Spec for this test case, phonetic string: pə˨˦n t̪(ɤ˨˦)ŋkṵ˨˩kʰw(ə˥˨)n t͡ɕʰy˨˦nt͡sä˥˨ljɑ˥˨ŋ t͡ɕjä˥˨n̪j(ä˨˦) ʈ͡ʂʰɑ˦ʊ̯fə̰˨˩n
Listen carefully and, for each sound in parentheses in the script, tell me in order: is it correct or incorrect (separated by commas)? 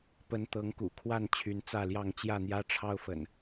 correct, incorrect, incorrect